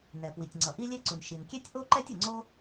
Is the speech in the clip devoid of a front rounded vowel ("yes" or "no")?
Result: yes